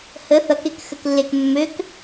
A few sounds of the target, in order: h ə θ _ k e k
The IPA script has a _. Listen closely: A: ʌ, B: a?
A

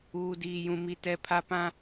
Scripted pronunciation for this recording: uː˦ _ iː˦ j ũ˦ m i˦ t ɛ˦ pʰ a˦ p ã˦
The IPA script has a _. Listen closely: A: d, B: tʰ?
A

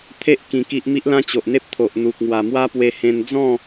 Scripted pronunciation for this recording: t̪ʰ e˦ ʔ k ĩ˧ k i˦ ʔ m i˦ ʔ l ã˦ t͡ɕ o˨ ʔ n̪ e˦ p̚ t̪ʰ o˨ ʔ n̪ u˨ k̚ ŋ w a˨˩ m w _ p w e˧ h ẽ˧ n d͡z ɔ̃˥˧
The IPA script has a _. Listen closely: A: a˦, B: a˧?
A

